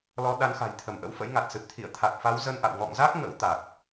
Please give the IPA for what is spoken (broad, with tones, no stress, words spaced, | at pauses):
lɔ˨˦ ɗa˨˦nxa̤˨˩j t̪ʰə˧˩mʔə̰˧˥wfə̰˧˥jŋa˨˩t̚ sɨ˨˩p̚t̪ʰḭ˧˨ə̯ t̪ʰa˨˩k̚fa˨˦w zə˧nʔa̰˧˨w ŋɔ̰˧˨ŋza˦˥k̚ ŋə̰˧˥w t̪a˨˩k̚